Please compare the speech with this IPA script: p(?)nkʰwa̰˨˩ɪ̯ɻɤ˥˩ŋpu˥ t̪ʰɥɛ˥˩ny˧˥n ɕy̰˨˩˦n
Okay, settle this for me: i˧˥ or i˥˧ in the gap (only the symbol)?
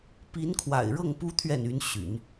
i˧˥